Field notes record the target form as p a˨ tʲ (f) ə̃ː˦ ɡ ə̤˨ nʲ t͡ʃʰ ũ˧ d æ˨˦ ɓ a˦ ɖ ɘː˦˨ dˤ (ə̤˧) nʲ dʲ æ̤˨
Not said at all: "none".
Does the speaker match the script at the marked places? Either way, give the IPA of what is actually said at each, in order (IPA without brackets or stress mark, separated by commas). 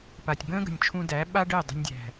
b, ə̤˧